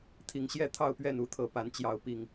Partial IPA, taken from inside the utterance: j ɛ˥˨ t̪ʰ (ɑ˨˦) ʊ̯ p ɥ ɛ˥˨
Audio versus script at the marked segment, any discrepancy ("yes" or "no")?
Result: yes